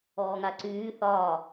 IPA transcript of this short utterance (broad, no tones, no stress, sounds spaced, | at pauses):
ɔː ŋ a ǀ yː θ ɒː